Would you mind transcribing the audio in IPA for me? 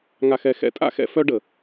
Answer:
ŋa˧xɛ˧xɛ̰˦ tʼa̰˦xɛ̰˧ fœ˧ ɖə˨

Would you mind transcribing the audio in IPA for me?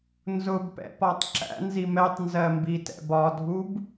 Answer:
nzʊbpɛ̰pɒtˤ ǁæ̰nzi mɛtˤnzɜmbitɛ̰b ɒdʱub

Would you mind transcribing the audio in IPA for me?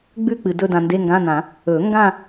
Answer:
ɡ͡bʉ˥˧k͡pɨ˨ dɵ˥˧ dã˨nde˧˥˧ŋɡã˧˥˧nã˨˩˦ | ɵ˨˩˦ŋɡã˥˧

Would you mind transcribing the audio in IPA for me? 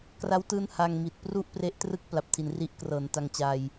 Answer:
kra˦˥wtɯː˦˥n ha˧ŋmi˨˩t̚pru˥˩ʔ pre˦˥ʔtrɯ˥˩k̚ pla˨˩p̚tʰi˩˦n ri˦˥ʔ krɤː˩˦nta˧ŋt͡ɕa˧j

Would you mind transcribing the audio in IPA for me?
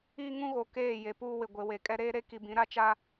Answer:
iː˦ŋũ˦ɣo˨ keː˦˨je˨ puː˦wɪ˨ ɡʷe˨we˨ kʼɛ˦ɾeː˦ɾe˦ ki˨bĩ˨˦ɾa˦t͡ʃa˦

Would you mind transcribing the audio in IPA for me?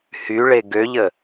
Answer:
hyɭe ɡøʎə

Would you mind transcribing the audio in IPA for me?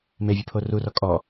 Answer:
mevʲʉpʰo rurɔ kʼɔ

